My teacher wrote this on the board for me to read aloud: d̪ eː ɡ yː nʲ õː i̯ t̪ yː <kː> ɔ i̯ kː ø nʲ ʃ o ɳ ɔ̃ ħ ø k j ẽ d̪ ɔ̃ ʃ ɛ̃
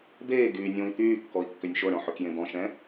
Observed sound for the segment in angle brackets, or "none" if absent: kː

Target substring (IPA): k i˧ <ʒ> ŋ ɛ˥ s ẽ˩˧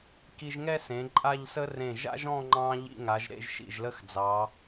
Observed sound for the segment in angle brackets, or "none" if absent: ʒ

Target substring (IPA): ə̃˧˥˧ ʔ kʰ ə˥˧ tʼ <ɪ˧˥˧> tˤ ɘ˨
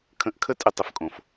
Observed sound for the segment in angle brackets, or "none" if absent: ɪ˧˥˧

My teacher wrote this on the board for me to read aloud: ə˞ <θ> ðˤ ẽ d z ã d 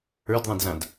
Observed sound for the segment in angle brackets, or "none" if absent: d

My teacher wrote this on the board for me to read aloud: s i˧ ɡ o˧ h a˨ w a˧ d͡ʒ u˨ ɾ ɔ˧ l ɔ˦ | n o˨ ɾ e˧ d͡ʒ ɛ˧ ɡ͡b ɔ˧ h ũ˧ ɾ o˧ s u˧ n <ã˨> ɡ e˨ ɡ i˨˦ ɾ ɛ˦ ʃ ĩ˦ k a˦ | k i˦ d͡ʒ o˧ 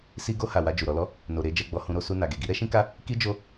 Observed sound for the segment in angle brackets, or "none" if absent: a˨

